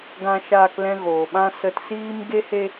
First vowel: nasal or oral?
nasal